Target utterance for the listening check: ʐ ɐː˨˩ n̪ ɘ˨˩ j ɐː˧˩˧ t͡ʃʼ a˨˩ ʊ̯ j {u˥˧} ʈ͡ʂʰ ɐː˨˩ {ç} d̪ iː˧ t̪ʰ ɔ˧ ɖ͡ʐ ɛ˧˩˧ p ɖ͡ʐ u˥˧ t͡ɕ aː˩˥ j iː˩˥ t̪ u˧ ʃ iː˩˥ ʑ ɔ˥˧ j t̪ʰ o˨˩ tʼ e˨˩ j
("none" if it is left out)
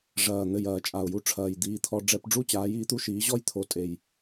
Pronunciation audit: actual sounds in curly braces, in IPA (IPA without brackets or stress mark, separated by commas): u˧, j